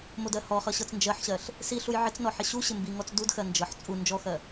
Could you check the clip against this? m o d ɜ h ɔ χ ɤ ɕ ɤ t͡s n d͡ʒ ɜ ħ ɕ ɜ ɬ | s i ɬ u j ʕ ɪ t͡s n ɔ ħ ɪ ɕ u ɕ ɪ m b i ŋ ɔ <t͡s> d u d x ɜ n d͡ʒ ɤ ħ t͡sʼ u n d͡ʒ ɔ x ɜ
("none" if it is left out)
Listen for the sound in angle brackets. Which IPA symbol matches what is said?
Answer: t͡s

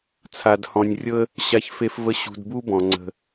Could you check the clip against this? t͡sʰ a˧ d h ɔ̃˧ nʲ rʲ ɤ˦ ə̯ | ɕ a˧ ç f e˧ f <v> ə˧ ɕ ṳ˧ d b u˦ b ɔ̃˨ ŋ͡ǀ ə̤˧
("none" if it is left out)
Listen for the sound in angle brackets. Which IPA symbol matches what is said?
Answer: v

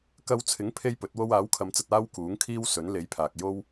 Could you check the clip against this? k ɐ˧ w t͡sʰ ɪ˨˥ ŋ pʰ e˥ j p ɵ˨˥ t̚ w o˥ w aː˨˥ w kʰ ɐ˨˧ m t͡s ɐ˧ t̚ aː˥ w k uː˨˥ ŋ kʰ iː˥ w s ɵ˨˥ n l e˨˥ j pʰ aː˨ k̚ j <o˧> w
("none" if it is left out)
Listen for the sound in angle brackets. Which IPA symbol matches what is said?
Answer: o˥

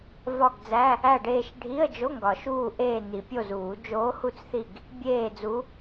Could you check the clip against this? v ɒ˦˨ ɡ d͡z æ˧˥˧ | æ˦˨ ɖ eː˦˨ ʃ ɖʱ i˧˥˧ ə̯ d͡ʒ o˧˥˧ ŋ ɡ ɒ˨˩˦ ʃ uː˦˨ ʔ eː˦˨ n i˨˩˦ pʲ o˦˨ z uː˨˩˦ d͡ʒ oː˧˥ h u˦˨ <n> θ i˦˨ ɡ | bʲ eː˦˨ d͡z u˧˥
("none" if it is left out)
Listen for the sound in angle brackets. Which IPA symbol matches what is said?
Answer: t͡s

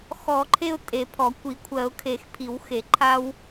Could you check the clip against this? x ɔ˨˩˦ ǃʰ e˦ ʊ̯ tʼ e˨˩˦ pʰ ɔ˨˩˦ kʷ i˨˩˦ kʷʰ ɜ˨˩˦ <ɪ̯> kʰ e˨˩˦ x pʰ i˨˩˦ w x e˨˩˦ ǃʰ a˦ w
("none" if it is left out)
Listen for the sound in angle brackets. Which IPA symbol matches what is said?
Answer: ʊ̯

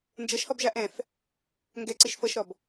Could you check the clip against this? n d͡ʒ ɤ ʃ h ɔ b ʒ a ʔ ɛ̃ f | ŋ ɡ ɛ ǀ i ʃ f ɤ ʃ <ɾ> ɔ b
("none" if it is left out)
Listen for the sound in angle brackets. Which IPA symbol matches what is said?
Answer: ɾ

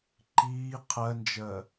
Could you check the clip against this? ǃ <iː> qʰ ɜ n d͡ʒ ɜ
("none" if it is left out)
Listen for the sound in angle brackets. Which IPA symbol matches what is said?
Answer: iː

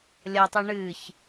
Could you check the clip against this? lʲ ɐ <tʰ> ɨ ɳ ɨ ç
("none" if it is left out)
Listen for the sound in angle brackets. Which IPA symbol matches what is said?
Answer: tˤ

